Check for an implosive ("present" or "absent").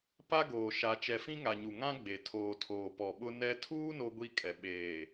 present